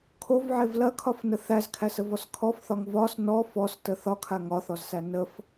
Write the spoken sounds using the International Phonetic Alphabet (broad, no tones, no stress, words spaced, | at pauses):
kʰovʕev lɐkʰɒfnə θæzkʰæsəvɔs kʰɔfθɒŋ vɒs nɔ fɔstə θɒkʰa ŋɒθɔzsæ nəf